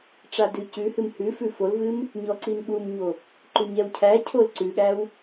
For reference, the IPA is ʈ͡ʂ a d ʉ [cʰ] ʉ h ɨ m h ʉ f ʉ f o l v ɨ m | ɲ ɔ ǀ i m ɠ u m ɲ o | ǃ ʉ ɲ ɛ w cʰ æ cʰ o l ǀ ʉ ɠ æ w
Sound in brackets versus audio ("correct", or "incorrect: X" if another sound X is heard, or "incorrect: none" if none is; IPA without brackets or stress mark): incorrect: c